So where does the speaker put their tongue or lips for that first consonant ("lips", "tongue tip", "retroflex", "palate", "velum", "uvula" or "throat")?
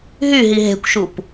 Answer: throat